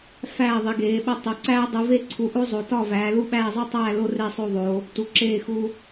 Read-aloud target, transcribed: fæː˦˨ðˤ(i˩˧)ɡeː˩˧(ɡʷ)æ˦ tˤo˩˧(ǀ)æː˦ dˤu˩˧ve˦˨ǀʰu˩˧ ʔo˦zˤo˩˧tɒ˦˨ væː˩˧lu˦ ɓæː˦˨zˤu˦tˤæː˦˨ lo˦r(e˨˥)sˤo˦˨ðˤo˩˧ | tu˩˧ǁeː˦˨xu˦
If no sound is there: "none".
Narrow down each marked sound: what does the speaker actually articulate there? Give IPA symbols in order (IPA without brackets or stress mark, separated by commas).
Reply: i˩˧, ɓ, ǀ, e˦˨